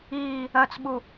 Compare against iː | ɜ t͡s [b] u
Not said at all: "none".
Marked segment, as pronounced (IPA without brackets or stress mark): ɓ